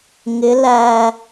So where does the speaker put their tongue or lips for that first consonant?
velum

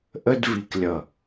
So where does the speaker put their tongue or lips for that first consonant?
throat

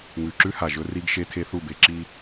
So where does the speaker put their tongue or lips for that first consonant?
velum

